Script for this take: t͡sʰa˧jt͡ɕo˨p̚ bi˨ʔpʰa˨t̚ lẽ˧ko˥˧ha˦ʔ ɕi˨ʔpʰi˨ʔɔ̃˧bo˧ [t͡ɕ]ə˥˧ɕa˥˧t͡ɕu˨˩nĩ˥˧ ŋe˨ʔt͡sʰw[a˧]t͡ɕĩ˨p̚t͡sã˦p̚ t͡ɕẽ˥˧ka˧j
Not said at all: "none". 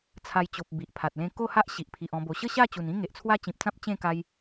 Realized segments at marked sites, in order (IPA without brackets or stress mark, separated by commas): ɕ, a˦